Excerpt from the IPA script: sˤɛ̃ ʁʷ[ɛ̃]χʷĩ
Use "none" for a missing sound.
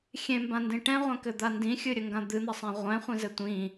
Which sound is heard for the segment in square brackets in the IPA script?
ɛ̃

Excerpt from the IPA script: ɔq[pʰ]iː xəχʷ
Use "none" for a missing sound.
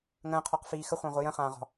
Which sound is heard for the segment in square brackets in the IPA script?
f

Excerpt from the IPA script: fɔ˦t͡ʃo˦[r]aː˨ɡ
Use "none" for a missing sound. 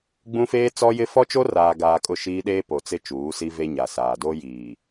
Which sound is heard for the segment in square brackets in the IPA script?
r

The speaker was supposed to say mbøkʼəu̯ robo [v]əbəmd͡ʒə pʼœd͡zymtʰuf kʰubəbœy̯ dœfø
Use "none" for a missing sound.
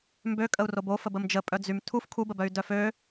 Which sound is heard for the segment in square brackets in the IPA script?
f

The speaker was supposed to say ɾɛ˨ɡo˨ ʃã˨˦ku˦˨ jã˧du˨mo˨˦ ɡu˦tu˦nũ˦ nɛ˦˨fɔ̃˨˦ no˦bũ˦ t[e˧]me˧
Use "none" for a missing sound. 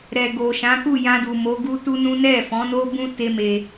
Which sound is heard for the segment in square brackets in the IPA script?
e˦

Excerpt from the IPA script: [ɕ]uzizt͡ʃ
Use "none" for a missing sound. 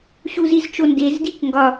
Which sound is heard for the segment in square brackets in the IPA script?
ɕ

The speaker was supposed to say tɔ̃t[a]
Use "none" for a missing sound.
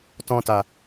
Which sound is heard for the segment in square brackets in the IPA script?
a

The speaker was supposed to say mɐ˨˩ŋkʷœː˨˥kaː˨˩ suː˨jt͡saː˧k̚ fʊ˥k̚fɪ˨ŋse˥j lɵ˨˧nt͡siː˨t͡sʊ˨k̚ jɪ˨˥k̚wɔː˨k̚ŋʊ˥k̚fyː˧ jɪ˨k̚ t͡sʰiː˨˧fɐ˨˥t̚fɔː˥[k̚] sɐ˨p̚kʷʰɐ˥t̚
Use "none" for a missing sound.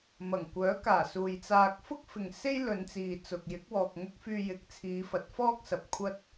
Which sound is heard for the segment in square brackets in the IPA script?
k̚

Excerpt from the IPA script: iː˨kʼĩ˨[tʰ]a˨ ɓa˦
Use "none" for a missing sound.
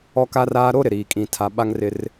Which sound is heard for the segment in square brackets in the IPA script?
tʰ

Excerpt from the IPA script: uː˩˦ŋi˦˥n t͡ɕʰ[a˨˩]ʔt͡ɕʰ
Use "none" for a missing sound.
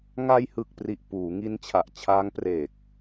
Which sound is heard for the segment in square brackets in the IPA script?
a˨˩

